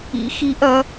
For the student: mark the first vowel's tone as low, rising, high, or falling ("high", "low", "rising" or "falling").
rising